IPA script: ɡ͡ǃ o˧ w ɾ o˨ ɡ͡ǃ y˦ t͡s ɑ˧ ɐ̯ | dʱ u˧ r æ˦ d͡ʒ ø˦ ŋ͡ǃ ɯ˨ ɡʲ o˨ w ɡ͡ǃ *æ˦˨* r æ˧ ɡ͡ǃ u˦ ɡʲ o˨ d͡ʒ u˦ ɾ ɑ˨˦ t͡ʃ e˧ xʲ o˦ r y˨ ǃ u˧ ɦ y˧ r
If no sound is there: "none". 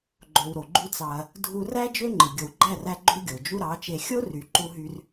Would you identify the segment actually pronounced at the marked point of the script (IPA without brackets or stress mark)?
æ˦˨